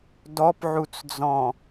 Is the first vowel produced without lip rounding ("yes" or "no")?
no